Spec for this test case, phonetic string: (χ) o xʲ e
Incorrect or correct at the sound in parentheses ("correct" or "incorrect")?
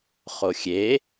correct